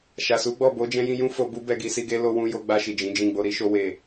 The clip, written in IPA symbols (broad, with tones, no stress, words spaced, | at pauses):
ʃa˨su˨˦ɡ͡bɔ˦˨ bo˨˦d͡ʒɛ̃˧jĩ˧ jũ˦fo˧bu˦ bɛ˦˨ɡi˧si˧ɡe˦ lo˧wũ˧ jo˧ɡ͡ba˧ʃi˨ d͡ʒĩ˨˦d͡ʒĩ˦˨ ɡ͡bo˧ɾi˦ʃo˦ we˦˨